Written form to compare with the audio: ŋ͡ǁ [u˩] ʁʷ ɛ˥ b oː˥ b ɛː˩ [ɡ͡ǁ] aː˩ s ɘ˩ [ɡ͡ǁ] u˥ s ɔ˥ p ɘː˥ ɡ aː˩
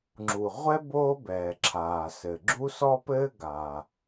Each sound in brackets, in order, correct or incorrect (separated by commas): correct, incorrect, correct